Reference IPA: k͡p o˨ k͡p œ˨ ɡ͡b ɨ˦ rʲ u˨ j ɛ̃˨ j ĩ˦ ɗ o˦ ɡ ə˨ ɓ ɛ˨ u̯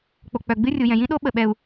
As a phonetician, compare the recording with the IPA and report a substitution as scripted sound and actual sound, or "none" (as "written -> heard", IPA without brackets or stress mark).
ɡ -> ɓ